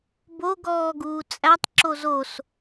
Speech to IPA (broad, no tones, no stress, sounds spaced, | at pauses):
b o ɡ ɔː ɡ uː t͡sʼ æ tˤ ǁ o z o s